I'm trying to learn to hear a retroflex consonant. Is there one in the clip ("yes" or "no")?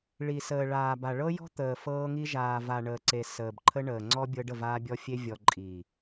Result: yes